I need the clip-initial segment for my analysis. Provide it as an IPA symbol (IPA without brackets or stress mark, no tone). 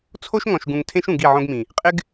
t͡sʰ